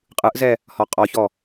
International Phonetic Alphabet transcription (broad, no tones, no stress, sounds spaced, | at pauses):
qʼ ɯ ʔ z ɛ | h ɔ qʼ ɔ ç ɔ